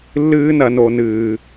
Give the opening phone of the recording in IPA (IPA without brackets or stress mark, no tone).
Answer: lː